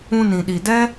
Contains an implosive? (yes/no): yes